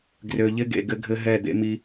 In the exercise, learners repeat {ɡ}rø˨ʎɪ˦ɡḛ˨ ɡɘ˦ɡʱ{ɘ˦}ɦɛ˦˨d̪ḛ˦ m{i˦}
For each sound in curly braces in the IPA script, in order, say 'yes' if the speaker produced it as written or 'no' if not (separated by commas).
yes, yes, yes